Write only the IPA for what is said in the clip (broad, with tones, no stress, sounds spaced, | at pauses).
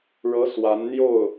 ɻ ɤ˧˥ s w a˧˥ n n̪ j o˥˩ ʊ̯